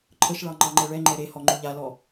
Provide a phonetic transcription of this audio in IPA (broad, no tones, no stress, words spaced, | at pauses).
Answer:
ǃʰəʃɭɑ ŋ͡ǃɑŋ͡ǃɛɭɛŋ͡ǃɛ ɾehɔ ŋ͡ǃuʎalɔ